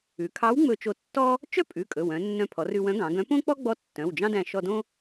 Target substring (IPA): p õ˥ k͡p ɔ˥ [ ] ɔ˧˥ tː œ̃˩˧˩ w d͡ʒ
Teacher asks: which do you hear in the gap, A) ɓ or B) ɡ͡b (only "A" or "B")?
B